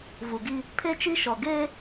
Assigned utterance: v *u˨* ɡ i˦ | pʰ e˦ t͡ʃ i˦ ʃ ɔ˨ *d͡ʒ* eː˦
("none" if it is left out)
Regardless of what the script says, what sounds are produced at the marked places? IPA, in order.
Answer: u˨, ɡ

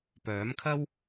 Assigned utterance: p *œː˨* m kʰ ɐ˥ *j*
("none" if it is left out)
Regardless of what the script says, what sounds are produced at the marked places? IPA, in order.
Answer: œː˨˥, w

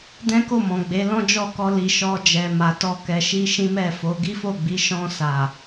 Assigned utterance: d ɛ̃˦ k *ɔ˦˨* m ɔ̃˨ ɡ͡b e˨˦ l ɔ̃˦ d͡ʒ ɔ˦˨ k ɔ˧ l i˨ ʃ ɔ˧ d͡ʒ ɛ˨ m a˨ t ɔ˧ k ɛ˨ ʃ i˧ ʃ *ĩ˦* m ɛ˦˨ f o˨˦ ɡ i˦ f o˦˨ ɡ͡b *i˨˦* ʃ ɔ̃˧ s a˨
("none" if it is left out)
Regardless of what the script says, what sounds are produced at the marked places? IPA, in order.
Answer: o˦˨, ĩ˦, i˨˦

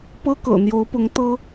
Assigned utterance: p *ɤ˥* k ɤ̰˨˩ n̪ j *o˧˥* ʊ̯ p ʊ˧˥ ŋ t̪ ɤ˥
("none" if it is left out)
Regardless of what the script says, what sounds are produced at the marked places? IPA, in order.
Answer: ɤ˥, o˧˥

